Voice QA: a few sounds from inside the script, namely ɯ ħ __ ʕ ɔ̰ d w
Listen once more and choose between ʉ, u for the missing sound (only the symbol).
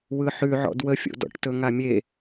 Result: ʉ